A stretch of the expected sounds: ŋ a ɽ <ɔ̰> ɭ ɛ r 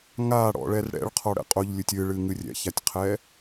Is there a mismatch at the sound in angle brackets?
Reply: no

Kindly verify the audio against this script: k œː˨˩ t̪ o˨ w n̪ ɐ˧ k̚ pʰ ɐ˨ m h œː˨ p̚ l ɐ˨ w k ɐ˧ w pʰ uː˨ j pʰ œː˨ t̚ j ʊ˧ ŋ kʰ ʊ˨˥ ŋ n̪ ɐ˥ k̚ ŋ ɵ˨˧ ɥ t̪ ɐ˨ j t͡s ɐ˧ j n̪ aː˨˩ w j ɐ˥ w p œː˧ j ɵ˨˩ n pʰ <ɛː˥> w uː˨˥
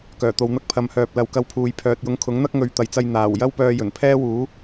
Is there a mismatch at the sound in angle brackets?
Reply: no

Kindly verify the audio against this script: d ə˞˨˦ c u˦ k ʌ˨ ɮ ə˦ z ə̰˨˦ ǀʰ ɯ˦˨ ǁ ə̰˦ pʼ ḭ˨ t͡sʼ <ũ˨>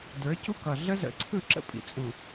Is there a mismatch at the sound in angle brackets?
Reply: no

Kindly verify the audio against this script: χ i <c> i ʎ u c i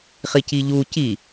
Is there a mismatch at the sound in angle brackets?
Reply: no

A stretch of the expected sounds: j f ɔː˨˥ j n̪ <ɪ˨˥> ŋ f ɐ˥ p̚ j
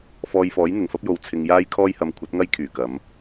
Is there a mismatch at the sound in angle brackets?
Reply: yes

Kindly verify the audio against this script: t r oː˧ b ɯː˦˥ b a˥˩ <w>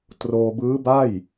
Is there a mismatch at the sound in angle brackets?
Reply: yes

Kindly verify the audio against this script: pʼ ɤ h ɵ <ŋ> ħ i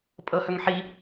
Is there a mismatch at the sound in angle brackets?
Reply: no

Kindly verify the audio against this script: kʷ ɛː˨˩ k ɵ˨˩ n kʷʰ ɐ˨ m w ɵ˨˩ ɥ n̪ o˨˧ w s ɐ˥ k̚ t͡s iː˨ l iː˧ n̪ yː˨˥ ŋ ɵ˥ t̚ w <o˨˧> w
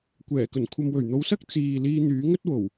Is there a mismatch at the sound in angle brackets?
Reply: yes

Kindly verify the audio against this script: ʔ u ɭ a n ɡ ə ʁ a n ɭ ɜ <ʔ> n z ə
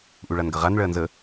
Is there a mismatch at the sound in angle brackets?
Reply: yes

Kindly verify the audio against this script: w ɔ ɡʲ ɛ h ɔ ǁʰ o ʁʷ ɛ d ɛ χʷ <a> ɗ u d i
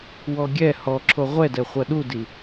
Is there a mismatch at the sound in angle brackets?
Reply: yes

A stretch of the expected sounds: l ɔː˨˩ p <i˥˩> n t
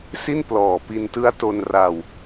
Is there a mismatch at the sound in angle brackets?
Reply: yes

